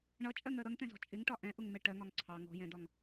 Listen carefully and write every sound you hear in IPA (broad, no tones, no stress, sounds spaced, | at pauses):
ɳ ʌ t͡ʃʼ ɜ ŋ ɜ ɾ ʌ ŋ t ɛ̃ z ɔ̤ t͡ʃʼ ɪ ŋ ʈ ɒ ʔ ɛ̃ ʔ ʊ ŋ m ɛ ʈ ɜ ŋ ɒ ŋ ǀʰ ɑ ŋ ɔ̤ j ɛ̃ d ɒ ŋ